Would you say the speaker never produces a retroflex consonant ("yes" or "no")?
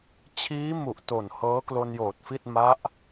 yes